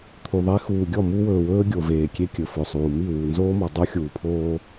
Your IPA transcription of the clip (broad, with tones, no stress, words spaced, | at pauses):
t̪ʰu˨ðˤe˦ xuː˨ɡʲɔ˦˨mu˦wɵː˨ wɵː˦ ɡʲo˨veː˨kʲe˦ kʲɵ˨fɵ˨sˤuː˨ mi˦˨wu˨nzoː˦mɔ˨ dˤo˦ xʲuː˨pʰoː˦